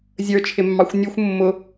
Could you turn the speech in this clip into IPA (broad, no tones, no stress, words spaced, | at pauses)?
zʲə˞t͡ʃʰɪmːɑxʷ nʲuxʷ mːʊ